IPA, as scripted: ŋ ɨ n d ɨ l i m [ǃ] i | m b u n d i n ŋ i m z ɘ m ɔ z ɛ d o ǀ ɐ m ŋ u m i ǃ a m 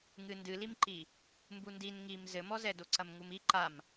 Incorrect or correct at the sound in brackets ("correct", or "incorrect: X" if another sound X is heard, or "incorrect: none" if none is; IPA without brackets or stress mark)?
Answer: correct